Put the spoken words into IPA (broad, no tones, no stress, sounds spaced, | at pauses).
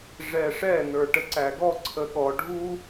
ʐ ɛ ʂ ɛ n ə˞ ʈ ə ǀ æ ɡ ɔ ǀʰ ə ɠ ɔ ɖʱ u